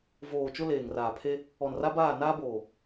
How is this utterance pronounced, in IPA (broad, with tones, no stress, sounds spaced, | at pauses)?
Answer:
v oː˨ t͡ʃ ʊ˦ l eː˨ ŋ r aː˨ pʰ e˦ | ɔ˨ n r a˦ b aː˦˨ n aː˦ b oː˨